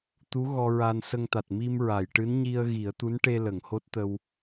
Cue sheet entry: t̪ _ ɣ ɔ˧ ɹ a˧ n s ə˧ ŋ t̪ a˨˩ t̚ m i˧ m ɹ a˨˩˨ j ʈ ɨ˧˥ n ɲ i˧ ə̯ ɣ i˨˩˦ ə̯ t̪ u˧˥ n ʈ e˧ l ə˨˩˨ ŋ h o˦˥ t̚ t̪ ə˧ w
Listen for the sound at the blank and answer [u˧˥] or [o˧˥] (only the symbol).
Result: u˧˥